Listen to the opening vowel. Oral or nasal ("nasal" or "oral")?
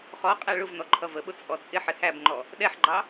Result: oral